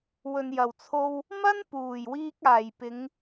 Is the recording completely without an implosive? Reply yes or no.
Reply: yes